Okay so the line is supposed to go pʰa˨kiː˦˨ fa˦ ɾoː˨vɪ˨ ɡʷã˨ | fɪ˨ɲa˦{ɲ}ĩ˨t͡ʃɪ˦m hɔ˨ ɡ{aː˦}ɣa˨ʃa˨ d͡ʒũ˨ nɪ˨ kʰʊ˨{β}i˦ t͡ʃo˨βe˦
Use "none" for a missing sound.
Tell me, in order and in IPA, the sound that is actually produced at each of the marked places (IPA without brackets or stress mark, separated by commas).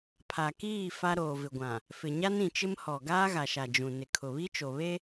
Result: n, aː˦, β